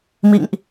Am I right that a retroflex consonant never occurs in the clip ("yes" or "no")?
yes